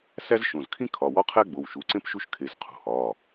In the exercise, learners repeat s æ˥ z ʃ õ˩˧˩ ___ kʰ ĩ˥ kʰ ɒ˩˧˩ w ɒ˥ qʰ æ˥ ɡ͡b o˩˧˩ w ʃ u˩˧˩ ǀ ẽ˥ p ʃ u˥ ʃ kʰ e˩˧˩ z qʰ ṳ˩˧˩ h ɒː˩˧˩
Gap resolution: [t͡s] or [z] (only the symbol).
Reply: z